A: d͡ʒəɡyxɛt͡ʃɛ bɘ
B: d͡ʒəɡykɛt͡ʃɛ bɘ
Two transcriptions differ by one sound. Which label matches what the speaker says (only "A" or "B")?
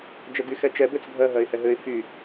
A